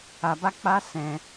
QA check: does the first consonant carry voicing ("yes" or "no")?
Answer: yes